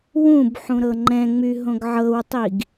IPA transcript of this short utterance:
wũb ħũɾɤŋ͡ǃɛ̃ŋ͡my ɦõɡʕɤwtˤiɡ

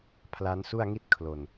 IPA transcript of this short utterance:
pʰla˦˥nsu˥˩a̯ŋi˥˩t̚ kʰlo˨˩n

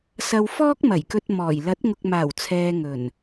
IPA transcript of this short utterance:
sɐ˧w fɔː˥k̚mɐ˨˩jkɵ˧t̚ mɔː˨˩j lɐ˨˥t̚ŋʊ˨k̚maː˨˩w t͡sʰɛː˨ ŋɵ˨˩n

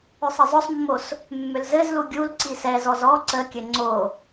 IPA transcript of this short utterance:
ʏsˤɘzˤɵsˤmːos | mːʏlzɘzlu ɡʲul ǀisɛzɔz ɔ ǀəkʲɘ ŋ͡ǀo

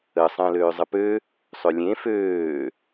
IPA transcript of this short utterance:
ə sˤə̃ːløːzˤəpø | sˤølʲẽ føː

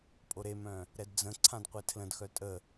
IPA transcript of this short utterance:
pʼoɾemœ̃ | ɾɛdd͡zə̃ǀʰãd qʷetʰlə̃dxœ tʼə

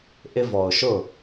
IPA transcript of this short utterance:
ʔɪ˥vɔ˩ʊ̯ ʃʊ˥˩

